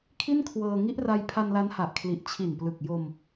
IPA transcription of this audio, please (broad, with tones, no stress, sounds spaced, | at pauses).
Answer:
kʰ i˥˩ n kʰ w ɤː˧ ŋ i˦˥ ʔ r a˧ j pʰ a˧ n l a˦˥ n h a˨˩ ʔ kʰ l i˨˩ ʔ t͡ɕʰ i˨˩ n p l ɯ˨˩ k̚ j o˧ m